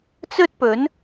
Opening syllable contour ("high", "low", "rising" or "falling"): high